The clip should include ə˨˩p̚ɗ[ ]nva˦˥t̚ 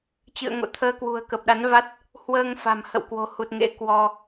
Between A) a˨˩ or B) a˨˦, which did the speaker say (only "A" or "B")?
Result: B